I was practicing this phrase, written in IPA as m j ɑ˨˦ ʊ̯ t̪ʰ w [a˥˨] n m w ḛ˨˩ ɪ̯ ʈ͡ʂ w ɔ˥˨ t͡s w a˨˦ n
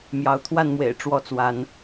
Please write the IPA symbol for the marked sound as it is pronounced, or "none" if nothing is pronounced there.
a˥˨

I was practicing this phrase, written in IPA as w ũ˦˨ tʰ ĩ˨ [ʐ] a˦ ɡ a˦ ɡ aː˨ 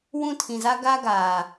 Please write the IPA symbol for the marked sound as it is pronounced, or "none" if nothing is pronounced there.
z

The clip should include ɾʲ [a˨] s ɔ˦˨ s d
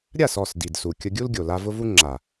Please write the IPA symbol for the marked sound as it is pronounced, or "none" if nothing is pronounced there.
a˦˨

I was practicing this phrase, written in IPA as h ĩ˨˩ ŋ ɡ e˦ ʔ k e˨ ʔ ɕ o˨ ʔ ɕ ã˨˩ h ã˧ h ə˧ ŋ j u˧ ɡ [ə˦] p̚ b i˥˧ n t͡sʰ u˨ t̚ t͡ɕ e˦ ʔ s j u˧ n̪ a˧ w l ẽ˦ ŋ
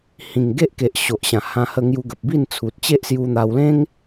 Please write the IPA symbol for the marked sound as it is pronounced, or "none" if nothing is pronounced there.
ə˨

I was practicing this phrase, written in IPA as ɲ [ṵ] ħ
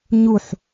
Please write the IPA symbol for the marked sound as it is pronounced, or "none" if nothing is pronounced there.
u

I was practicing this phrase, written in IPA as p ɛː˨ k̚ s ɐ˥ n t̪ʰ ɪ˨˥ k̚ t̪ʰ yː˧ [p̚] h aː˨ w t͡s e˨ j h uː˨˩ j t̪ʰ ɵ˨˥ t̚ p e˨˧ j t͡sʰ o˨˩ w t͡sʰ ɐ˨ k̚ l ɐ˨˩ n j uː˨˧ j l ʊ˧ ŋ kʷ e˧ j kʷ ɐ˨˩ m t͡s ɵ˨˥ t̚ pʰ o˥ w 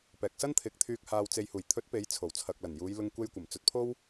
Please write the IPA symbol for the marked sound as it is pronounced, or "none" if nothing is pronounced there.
k̚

